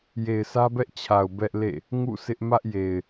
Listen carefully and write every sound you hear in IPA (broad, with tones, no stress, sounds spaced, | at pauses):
j e˨ ɪ̯ s ä˦ b ɛ˦ ʔ t͡ɕʰ a˨ ʊ̯ b ɛ˦ ʔ l ḛ˦˨ | ŋ ṵ˦˨ sʰ ɪ˦ ʔ m ä˦ ʔ j e˨ ɪ̯